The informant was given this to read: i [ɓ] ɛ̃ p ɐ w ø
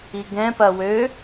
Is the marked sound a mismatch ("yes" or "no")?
yes